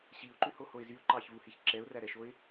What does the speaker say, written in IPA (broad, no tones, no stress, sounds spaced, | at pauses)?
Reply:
ɕ i ʊ̯ ǃ ʉ h o h o ɪ̯ z y ʊ̯ ǃ ɑ ç v u h i ç ǁ ɛ ʊ̯ r æ ɾ ɛ ʃ o ɪ̯